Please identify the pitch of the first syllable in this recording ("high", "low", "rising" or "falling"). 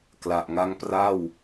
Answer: low